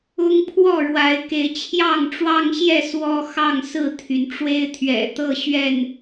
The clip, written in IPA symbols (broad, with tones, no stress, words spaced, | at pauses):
ʊ˦ŋpʰwɔ˥˨ɻwa˨˦ɪ̯ke˨˦ɪ̯ t͡ɕʰjɑ˥˨ŋʈ͡ʂwɑ˦ŋɕjɛ˥˨ swɔ˦ xɑ˥˨ŋsɹ̩˥˨t̪ʰy˩n ʈ͡ʂwe˦ɪ̯t̪ʰɥɛ̰˨˩t̪ɤ˥˨ ɕɥɛ˥˨n